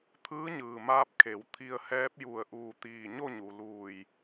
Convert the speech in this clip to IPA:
t̪ʰ ɯː˧˥ ɲ ɯː˩ m aː˧ p̚ kʰ e˩˧ w t̪ʰ i˧ ə̯ h ɛː˧˥ p̚ j u˧˩ ə̯ ʔ uː˧˩ t̪ iː˧˩ ɲ o˥˨ ɲ u˩ l uː˧˩ j

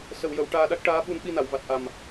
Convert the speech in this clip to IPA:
s ə˨˩˨ w j ə˨˩˨ w ʈ aː˧ ɗ a˦˥ k̚ ʈ aː˧˥ ɓ u˧ n ɓ i˧ n a˨˩˨ w v a˨˩ t̚ ʔ a˨˩ m

